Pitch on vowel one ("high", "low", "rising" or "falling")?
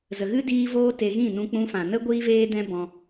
low